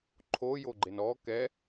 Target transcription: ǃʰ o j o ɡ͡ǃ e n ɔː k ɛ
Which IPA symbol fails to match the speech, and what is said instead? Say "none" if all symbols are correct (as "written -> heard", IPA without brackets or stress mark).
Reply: none